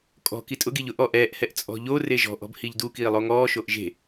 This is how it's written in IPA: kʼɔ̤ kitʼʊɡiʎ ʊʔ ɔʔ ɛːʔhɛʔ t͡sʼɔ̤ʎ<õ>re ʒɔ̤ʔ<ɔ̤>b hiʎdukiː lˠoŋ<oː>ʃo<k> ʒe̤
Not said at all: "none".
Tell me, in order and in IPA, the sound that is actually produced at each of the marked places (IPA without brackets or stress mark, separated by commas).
o, ɔ̤, ɔː, ʔ